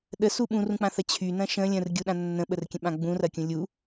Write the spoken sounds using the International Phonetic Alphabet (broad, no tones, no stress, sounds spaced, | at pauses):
ɗ ə s u ɓ ũ r ũ k͡p ã θ ɐ t͡ɕʰ y n ɐ̃ ʃ ə̃ lʲ ə̃ r ɡʲ u ɗ ã nː ə̃ ɓ ə r kʲ ə̃ ɓ ã ɡ͡b ũ r ɐ kʲ ũ lʲ u